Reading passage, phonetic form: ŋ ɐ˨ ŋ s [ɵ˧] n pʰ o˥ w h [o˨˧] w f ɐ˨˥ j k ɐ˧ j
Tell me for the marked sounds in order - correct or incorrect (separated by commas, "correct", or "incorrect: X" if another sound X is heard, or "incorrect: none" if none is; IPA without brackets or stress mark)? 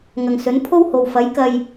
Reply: incorrect: ɵ˨˥, incorrect: o˨